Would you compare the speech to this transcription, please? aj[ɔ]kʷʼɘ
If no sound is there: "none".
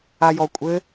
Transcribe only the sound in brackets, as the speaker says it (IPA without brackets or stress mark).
ɔ